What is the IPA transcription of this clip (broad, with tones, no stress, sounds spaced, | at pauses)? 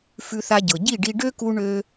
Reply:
f ʉ˧ θ a˧ ɟ ɤ˩ ɟ i˥˩ ɖ i˧ ɖ ø˥ k u˧ ɳ ø˧